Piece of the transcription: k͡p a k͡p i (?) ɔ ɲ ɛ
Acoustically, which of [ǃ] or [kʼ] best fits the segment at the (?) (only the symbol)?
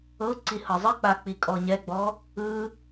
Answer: kʼ